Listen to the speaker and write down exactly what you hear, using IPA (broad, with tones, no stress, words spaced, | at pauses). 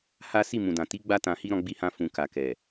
ha˦ si˦˨mũ˨dã˨ ti˨˦ ɡ͡ba˦tã˧hi˦ ɾɔ̃˦ɡ͡bi˦hã˦ fũ˧ka˨ kɛ˨